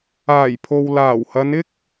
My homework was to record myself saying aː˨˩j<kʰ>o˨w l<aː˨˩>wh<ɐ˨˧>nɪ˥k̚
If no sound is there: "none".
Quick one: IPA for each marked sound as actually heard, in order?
pʰ, aː˨˩, ɐ˨˧

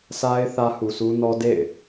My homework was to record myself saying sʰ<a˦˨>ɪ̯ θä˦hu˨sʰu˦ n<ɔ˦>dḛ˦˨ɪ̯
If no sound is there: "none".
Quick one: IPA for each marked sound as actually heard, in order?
a˦, ɔ˦

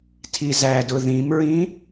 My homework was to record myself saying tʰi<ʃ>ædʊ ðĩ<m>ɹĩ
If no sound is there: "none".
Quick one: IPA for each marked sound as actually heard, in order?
z, m

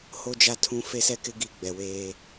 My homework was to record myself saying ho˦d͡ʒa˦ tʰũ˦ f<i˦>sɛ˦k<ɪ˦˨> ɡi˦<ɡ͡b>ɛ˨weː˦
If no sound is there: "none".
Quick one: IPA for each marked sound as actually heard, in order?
e˦, ɪ˦, ɡ͡b

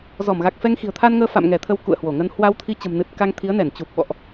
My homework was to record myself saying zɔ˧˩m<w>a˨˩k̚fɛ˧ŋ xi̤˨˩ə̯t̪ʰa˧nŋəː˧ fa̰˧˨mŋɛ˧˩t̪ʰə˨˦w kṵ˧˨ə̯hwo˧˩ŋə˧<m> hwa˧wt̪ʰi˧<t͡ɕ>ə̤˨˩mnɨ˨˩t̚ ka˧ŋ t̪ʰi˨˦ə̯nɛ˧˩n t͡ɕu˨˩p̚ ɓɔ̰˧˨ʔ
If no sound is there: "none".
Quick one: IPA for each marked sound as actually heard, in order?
ɣ, n, t͡ɕ

